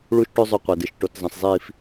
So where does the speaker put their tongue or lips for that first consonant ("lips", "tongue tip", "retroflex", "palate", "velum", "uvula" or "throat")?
retroflex